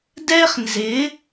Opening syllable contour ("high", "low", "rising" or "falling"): high